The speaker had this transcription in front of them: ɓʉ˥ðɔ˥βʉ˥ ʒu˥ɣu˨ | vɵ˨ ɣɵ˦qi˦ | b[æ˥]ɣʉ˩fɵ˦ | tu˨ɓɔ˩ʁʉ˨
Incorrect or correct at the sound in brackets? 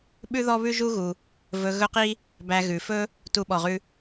incorrect: æ˨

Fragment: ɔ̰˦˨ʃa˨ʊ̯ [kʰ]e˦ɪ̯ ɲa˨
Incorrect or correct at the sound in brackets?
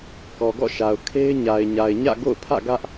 correct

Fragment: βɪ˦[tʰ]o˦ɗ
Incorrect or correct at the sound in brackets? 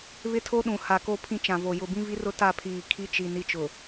correct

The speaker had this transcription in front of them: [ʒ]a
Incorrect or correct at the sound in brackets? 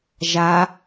correct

